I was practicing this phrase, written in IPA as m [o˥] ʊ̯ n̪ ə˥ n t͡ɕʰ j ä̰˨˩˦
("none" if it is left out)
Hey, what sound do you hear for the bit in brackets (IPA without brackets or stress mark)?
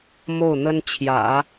o˥˩